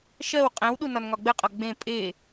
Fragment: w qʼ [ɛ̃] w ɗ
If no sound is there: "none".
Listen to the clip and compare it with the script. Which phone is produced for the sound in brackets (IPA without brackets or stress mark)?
ɛ̃